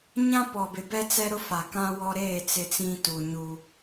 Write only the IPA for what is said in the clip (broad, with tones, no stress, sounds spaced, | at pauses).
ɲ ã˦ p ɔ˨ b ɪ˨ b ɛ˦ t͡s ɛ˦ ɾ ʊ˦ f a˨ k ã˦ w ɔ˦ ɾ eː˦˨ t͡s ɪ˦ t͡s ĩ˦ t u˨ ɲ u˦